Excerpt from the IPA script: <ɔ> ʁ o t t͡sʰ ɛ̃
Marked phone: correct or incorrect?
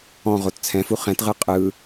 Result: incorrect